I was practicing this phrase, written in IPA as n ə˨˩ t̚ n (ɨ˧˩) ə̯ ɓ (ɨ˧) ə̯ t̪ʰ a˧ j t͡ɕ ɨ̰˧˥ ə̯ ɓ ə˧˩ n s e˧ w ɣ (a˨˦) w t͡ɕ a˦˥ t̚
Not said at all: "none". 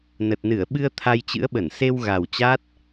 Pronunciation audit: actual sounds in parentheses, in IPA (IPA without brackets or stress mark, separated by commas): ɨ˧˩, ɨ˧, a˨˩